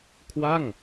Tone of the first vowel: falling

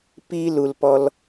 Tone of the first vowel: high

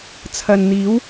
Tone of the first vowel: low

